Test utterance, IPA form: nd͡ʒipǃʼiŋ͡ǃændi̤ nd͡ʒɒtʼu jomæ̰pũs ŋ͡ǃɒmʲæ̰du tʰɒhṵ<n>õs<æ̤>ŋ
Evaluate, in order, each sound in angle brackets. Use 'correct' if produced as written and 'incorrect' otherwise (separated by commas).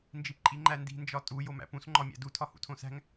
incorrect, correct